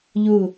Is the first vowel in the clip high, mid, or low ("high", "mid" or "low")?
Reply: high